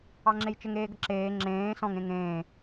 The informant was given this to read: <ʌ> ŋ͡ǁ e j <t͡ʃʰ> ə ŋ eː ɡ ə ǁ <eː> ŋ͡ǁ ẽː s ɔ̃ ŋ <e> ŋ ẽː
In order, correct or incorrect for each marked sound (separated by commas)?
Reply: incorrect, incorrect, correct, incorrect